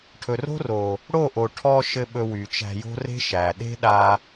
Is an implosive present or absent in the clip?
present